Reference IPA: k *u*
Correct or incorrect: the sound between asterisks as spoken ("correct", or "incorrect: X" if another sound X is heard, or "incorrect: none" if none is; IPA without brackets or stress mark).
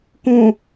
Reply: incorrect: ũ